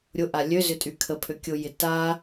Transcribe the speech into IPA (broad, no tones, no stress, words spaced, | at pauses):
ɾʲʊʔa lʲøzʏtʼy kʰəpʰø kʲʊjɪ ta